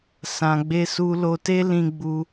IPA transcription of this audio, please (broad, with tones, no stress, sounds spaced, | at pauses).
s ã˨ ɡ͡b e˧ s u˧ l o˧ t e˦ l ĩ˧ ɡ͡b u˧